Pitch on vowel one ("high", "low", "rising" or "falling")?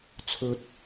high